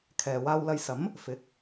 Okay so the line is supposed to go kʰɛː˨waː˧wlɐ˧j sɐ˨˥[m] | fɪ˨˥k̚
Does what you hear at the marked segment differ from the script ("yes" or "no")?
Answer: no